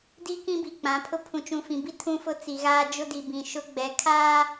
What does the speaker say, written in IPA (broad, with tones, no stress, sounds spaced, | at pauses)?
d i˦ k ĩ˦ b i˨ k͡p ã˨˦ pʰ ʊ˦ pʰ ũ˨ t͡ʃ ũ˨ f ĩ˨ b i˦ tʰ ũ˦ f ʊ˦ t͡s i˨ ɣ aː˦ d͡ʒ ʊ˦ d i˨ b ĩ˨ ʃ ʊ˦ ɡ͡b ɛ˨˦ kʰ aː˦